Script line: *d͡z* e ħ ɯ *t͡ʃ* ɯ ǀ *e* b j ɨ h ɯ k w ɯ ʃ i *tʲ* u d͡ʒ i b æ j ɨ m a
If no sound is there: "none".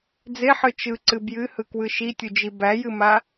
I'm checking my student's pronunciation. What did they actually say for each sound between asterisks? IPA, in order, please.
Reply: d͡z, t͡ʃ, ɨ, tʲ

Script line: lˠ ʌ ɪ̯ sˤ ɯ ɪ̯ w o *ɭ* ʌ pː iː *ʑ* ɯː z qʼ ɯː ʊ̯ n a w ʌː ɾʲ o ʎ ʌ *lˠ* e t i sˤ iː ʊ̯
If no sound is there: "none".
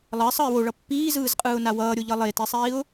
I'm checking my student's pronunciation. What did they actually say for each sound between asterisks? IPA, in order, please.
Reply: ɭ, z, lˠ

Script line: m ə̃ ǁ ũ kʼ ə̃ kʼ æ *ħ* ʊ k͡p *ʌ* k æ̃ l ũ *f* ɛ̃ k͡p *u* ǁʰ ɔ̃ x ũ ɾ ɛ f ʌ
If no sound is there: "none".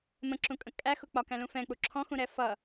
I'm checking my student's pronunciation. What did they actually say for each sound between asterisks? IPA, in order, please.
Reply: x, ɒ, f, u

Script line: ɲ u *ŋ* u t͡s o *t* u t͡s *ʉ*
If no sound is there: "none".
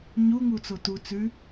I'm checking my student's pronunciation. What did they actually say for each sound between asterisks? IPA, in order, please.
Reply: ŋ, t, ʉ

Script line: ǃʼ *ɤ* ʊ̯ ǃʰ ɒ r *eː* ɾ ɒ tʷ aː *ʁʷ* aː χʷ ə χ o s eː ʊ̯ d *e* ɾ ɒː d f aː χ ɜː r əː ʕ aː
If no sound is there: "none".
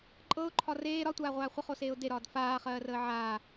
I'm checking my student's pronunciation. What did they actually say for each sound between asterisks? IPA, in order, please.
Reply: ɤ, eː, ʁʷ, e

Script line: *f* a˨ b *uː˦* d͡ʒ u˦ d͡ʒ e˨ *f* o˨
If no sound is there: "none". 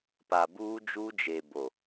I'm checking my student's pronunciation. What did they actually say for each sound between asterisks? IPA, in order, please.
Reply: p, uː˦, b

